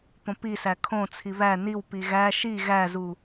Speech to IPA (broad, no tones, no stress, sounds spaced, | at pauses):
p õ p i s æ kʰ õ t͡sʰ i β æ n i w p i ɣ æ ʃ i ɣ æ z u